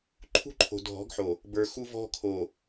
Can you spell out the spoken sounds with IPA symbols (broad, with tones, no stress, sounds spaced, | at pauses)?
ǃʰ ṳ˦ ǃʰ o̤˨ dʱ ɔ̤˨˦ ɡ ħ o˨ | b ə˞˨ x u˦ v ɔ̤˦ kʰ o˨